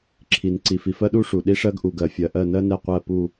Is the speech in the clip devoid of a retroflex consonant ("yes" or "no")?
no